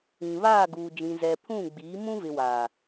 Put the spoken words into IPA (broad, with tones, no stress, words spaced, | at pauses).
ĩ˨βaː˦˨ ɡuː˨d͡ʒĩ˨zɛ˨ pʰũ˦˨ɡ͡biː˨˦ mũ˦vɪ˨ wa˨